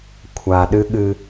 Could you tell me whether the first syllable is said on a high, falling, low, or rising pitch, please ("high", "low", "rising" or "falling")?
low